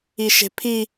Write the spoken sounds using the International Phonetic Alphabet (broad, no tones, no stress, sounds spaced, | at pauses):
i ʃ e̤ pʰ i